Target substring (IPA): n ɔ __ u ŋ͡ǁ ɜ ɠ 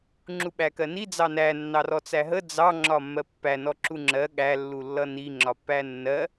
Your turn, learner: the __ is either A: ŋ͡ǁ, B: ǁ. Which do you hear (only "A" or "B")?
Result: B